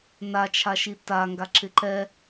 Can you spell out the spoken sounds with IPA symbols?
n a t͡ʃʰ a ʃ i t a ŋ ɡ a ǁ ɪ ǃ ɛ

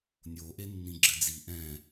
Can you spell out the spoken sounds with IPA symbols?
nʲ o ʔ e nː ĩ ɡ͡ǁ ɘ d͡z i ʔ ɛ̃

